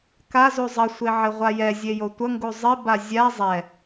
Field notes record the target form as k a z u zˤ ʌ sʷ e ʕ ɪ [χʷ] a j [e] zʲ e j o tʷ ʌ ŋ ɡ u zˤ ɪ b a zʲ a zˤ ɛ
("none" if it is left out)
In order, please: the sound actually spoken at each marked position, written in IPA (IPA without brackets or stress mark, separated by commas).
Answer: ʁʷ, ɛ